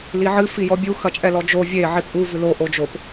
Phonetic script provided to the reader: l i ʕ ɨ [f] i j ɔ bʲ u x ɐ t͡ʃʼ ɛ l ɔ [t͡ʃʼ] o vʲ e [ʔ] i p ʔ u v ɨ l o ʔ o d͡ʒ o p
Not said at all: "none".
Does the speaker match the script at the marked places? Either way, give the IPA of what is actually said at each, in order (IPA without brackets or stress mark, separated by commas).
f, d͡ʒ, ʕ